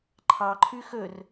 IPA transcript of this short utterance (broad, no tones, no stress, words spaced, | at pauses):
ǃʰɑǃʰʉ xɵr